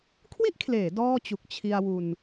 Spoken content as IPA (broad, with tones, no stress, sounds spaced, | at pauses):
kʰ w i˥˩ ʔ kʰ l eː˩˦ d ɔː˥˩ t͡ɕ u˨˩ k̚ t͡ɕʰ i˧ a̯ w u˧ n